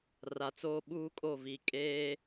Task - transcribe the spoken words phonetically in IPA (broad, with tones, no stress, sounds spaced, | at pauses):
r a˨ t͡s oː˦ ɓ uː˦ kʼ o˦˨ v iː˨ kʼ eː˦